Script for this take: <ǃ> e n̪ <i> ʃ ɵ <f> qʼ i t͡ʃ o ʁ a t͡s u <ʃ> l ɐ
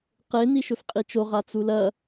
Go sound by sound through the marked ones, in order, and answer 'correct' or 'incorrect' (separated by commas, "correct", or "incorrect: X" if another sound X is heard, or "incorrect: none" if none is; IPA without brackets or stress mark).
incorrect: q, correct, correct, incorrect: none